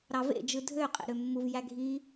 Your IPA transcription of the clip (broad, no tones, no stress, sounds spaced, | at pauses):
ɾ ɑ v ḛ d͡ʒ ɯ dʱ ø qʼ ḛ ɾ ø mː u v j æ ɡʱ i